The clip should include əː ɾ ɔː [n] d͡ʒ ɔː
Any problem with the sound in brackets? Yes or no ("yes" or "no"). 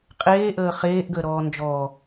no